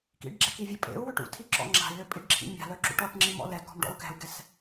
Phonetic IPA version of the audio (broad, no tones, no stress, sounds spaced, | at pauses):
k ḭ ɖ ɡ͡ǁ ɛ k i vʲ ɵ pʼ ḛ u̯ w ø ʈ ṵ tʰ i ǁ ɔ̰ ŋ͡ǁ a̤ i̯ l ø pʼ i ɖ ǁʰ ḭ mʲ a̤ l œ ǁ ṵ ʈ ɔ ʈ ŋ͡ǁ i m ɔ̰ l ɛ k ɔ̤ m ɖ ɔ̰ u̯ k ɛ̤ u̯ ɡ ɛ s